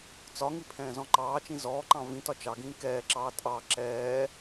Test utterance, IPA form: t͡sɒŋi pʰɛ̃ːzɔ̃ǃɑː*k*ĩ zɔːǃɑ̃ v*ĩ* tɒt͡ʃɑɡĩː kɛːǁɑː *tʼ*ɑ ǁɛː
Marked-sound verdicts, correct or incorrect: incorrect, correct, correct

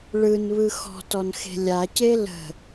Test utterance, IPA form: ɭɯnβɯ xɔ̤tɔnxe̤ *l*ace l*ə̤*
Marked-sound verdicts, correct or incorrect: incorrect, correct

